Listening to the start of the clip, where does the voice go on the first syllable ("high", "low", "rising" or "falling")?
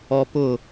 high